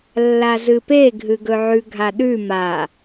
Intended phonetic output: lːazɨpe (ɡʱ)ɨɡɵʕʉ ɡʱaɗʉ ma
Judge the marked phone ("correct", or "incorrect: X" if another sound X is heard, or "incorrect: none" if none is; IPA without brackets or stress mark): correct